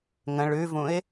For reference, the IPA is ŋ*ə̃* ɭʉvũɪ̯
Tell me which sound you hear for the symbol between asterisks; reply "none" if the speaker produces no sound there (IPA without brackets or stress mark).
ə̃